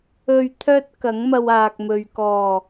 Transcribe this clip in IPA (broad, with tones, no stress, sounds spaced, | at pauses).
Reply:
ɵ˧ ɥ t̪ʰ œː˥ t̚ k ɐ˨˥ ŋ m ɐ˧ w aː˨ k̚ m ɵ˨ ɥ k ɔː˨˩